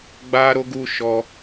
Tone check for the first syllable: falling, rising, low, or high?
high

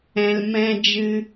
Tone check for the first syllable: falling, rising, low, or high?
low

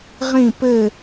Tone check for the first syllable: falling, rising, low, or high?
falling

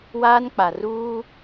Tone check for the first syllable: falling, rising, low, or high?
high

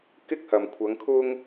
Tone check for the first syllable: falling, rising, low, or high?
high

